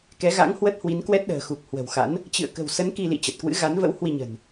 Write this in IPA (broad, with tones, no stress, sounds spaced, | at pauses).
k ɛ˨˦ ɣ a̰˧˥ ŋ h w ə˦˥ t̚ h w i˨˦ n k w ɛ˦˥ t̚ ɗ ə̤ː˨˩ x u˨˩ k̚ h w ə̤˨˩ w x a̰˧˥ n | t͡ɕ ɨ̰˧˨ ə̯ k ə̤˨˩ w s ə˨˦ n k i˧ l ḭ˧˨ t͡ɕ ə˨˩ t̚ k w ɨ̰˧˥ ɣ a˨˦ n v ə̰˧˥ w h w i˧ ɲ ə̤˨˩ n